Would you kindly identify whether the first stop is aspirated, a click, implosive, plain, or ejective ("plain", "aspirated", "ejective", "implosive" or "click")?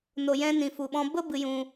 implosive